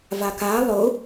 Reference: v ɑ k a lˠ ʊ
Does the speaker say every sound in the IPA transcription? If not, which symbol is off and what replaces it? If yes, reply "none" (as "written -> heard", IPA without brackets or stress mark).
ɑ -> a